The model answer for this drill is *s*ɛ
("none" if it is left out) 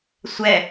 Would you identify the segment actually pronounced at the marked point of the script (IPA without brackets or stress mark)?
sʷ